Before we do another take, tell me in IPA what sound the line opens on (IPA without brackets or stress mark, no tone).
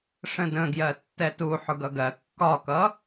ʂ